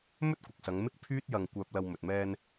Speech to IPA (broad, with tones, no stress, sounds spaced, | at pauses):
m ɵ˥ t̚ kʷ ɪ˨ k̚ s ɐ˨˧ ŋ m ɪ˥ k̚ pʰ yː˥ t̚ j ɐ˧ ŋ kʷ œː˧ p̚ l ɐ˧ w m ɵ˨ t̚ m ɛː˧ n